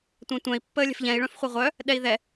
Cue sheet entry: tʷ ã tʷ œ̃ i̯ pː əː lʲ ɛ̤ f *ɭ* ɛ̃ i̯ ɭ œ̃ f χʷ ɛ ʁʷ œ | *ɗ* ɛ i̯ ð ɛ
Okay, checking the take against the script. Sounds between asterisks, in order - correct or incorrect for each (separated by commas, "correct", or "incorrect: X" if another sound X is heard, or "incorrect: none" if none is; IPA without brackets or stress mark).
incorrect: ʎ, correct